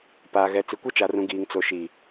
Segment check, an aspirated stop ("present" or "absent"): absent